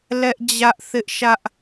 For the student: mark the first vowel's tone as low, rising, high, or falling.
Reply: high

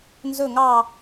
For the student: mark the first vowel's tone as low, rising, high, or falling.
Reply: falling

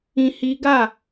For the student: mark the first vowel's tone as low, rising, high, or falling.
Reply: high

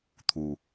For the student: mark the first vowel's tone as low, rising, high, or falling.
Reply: low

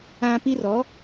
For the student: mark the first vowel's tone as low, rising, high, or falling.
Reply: high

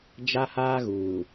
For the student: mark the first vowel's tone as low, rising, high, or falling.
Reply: high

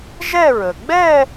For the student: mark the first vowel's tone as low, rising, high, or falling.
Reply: falling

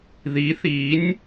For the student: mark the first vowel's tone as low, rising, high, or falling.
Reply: rising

